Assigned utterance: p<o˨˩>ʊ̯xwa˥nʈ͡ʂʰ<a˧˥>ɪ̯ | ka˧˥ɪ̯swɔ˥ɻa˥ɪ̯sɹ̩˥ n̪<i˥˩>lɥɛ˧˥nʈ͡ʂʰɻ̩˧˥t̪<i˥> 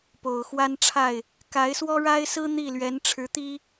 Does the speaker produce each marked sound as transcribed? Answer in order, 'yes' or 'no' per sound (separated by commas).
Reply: yes, no, yes, yes